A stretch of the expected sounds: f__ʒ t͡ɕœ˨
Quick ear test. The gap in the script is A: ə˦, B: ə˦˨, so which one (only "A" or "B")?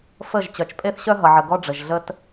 B